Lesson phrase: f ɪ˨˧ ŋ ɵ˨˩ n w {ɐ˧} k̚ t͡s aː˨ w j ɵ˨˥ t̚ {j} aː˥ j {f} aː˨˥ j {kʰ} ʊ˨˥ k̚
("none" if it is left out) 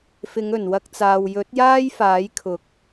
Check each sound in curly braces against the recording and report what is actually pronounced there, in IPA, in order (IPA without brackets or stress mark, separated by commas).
ɐ˧, j, f, kʰ